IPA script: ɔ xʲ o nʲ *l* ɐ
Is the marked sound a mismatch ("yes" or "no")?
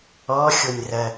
yes